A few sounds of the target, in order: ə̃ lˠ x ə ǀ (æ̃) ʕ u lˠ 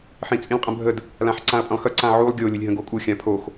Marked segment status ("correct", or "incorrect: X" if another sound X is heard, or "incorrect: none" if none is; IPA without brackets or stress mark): incorrect: ã